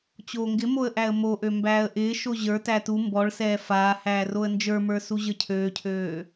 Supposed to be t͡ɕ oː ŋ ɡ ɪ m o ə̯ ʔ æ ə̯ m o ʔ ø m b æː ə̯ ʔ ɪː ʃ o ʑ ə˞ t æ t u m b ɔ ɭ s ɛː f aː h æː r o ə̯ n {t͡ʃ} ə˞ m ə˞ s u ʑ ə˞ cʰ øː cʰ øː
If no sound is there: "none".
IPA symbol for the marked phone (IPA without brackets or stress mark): d͡ʒ